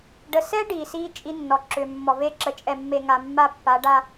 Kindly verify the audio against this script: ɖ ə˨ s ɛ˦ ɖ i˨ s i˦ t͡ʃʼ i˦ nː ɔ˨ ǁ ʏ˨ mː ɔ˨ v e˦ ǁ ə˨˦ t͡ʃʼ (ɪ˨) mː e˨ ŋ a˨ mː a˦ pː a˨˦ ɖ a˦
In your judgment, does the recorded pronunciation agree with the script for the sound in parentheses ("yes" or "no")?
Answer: no